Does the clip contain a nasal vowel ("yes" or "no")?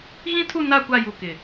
yes